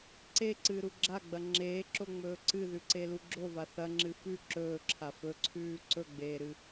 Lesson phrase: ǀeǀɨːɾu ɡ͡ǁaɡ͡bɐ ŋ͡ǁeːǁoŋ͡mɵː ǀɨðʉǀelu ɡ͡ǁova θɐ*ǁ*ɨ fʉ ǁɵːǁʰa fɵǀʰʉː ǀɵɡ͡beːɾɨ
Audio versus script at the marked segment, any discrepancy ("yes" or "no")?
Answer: yes